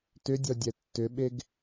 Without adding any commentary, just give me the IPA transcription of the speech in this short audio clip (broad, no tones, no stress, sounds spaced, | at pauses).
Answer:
t ʏ dʲ ɔ dʲ ɛ tː ʏ ɓ e ɡ